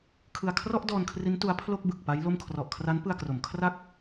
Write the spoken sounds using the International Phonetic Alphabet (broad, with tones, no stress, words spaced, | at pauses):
kʰɯ˧a̯kʰrɔ˥˩ʔdɔː˧nkʰri˦˥n tu˦˥a̯pʰlo˥˩k̚bɯ˨˩k̚ pa˦˥jlo˥˩m kʰrɔ˨˩ʔkʰra˦˥npɯ˧a̯kro˩˦m kʰra˥˩k̚